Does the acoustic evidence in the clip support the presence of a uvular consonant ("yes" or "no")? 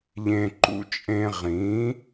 yes